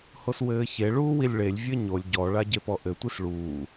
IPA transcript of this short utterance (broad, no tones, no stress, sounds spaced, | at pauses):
h o s w ɘː ç e ɭ uː w i lʲ ɭ e lʲ vʲ ɘ ɲ o lʲ ɟ ɔ ɭ a ɟ e p ɔ ʔ ɘ tʷ i s ɭ uː